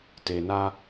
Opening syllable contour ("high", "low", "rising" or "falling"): low